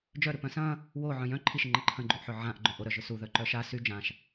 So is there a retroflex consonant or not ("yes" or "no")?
no